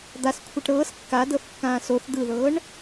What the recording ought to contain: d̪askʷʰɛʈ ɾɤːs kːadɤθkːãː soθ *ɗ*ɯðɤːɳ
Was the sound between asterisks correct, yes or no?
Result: no